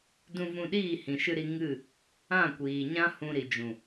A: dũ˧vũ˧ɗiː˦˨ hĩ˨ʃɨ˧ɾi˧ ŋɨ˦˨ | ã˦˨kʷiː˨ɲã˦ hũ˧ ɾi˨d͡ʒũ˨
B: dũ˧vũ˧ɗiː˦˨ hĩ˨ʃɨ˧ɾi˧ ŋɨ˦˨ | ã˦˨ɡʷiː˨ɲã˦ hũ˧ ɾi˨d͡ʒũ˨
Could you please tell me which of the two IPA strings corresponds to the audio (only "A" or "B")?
A